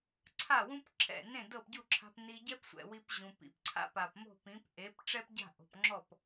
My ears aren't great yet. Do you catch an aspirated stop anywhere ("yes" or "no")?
yes